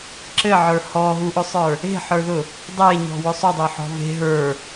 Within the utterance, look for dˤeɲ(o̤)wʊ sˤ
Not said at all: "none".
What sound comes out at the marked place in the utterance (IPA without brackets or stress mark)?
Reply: ɔ̤